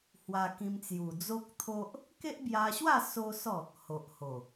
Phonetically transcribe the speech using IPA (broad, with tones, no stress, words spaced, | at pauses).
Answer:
hwa˧ kĩ˧mt͡sju˨˩ d͡zo˦k̚t̪ʰo˦ʔ | ke˦ʔbja˧ɕwa˥˧ so˦sɔ˥˧ | ho˨ʔho˨˩